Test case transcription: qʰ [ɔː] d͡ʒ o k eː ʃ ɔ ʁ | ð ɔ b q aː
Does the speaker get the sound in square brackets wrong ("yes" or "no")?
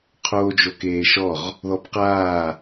yes